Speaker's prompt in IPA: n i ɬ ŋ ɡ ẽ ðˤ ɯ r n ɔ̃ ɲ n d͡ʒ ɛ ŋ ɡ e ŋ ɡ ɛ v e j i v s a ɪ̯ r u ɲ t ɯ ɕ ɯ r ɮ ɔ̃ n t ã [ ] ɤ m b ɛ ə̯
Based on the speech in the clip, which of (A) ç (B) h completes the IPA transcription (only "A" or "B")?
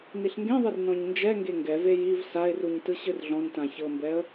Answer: A